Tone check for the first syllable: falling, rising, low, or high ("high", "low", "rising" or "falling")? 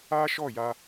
high